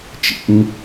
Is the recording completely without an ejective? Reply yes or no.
yes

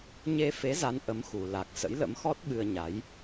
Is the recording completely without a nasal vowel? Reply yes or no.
yes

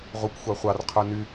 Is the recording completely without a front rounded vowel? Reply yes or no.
no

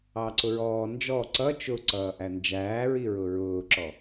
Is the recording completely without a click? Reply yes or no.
no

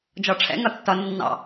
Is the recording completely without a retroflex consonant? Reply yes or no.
no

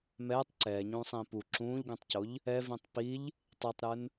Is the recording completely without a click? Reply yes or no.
no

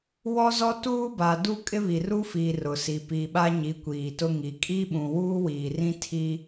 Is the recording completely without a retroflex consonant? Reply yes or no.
yes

